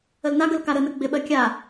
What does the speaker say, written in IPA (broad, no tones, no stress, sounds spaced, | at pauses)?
ə l n a ɡ ə l k a ɾ ə n ə ɡ͡b ɪ ɓ ɜ kʲ a